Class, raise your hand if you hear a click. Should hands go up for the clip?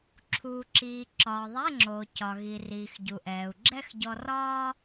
yes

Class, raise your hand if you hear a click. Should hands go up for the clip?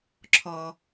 yes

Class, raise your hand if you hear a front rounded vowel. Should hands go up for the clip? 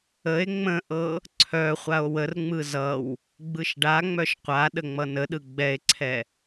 yes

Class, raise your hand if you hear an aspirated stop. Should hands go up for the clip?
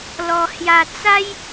no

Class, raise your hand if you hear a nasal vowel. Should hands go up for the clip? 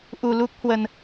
no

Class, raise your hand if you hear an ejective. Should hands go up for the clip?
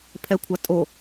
yes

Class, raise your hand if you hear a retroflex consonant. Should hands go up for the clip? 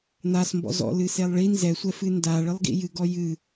yes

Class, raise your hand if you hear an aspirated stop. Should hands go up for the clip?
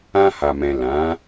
no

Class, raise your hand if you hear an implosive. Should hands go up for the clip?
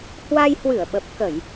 yes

